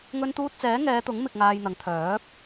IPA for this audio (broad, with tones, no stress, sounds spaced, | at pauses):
ŋ ɵ˧ n t̪ uː˧ t̚ t͡s ɛː˨˥ ŋ ɛː˨˧ t̪ ʊ˨˥ ŋ m ɪ˧ k̚ ŋ aː˧ j n̪ ɐ˨˥ ŋ t̪ʰ œː˨˥ p̚